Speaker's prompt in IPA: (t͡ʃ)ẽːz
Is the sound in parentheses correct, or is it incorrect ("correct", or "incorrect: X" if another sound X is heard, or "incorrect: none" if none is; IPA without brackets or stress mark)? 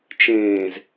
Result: correct